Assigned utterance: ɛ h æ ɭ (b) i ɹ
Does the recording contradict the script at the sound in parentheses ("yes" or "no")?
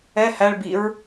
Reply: no